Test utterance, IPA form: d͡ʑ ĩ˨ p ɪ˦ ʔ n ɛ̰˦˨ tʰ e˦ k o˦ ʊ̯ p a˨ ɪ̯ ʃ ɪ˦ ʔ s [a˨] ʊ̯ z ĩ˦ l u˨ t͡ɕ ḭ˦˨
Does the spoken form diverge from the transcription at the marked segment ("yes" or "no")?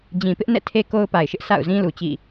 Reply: yes